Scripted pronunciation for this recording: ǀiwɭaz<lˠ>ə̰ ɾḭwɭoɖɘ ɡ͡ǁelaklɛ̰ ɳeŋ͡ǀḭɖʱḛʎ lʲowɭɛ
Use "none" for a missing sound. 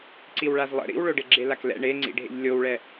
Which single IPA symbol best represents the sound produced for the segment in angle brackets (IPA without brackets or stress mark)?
lˠ